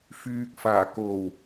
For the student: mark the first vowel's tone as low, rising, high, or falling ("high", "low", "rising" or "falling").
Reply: low